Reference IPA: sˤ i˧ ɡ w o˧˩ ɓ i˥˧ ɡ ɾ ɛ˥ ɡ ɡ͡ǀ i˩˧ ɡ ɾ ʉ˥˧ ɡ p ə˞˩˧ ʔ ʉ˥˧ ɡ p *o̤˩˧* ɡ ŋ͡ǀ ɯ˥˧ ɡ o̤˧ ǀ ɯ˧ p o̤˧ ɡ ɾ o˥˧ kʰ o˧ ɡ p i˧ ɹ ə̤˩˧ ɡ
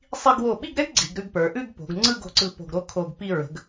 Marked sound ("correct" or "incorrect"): correct